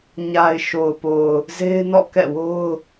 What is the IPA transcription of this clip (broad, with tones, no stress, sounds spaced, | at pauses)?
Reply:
ɲ a˨ ɪ̯ ʃ o˨ ʊ̯ p o˨ ʊ̯ | z e˦ ɪ̯ n ɔ̰˦˨ k ɛ̰˦˨ w o˦ ʊ̯